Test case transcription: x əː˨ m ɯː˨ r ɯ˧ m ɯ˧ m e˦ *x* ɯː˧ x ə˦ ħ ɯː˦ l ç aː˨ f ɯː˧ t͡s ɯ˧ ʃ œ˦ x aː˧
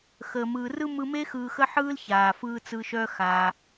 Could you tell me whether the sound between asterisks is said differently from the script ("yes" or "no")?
no